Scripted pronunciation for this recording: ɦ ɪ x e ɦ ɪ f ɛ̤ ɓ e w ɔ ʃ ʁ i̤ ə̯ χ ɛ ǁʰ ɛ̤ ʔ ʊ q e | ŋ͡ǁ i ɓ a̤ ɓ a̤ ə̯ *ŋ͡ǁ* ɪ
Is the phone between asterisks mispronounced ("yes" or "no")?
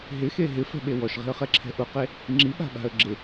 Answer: yes